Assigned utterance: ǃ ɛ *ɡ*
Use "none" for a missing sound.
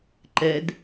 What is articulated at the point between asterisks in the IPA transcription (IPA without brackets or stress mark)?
d